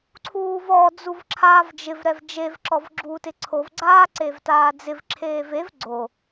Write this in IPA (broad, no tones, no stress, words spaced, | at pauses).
ǀʰuːvɔ d͡zuvǁʰaːvd͡ʒɪv ɾɛvd͡ʒev ǁɔvɡ͡ǁuːtɪǀʰov ɡ͡ǀaːǀevtaːd͡zɪv ǁʰeːvev ɡ͡ǀo